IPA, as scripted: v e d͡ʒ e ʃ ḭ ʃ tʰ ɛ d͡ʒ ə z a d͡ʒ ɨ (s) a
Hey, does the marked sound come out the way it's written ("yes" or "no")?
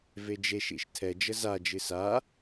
yes